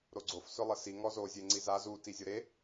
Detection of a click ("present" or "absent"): present